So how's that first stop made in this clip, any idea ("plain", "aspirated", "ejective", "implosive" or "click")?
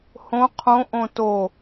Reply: aspirated